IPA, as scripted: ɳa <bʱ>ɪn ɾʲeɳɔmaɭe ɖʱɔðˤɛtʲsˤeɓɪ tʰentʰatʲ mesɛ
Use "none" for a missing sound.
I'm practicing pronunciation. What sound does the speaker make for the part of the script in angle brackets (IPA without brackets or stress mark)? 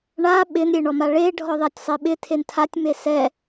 ɓ